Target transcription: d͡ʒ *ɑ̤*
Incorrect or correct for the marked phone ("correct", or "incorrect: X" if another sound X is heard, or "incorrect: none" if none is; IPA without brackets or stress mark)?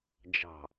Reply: correct